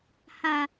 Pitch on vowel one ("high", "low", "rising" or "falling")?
low